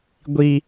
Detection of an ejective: absent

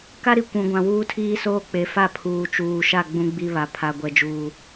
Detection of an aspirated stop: present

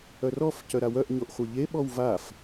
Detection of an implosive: present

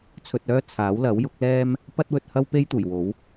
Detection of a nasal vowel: absent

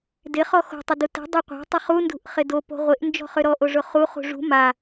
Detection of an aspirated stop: absent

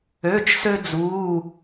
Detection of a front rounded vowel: present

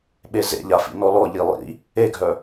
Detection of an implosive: present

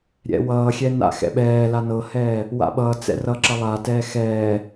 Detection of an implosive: present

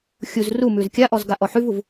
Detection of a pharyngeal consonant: present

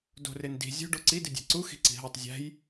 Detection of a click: present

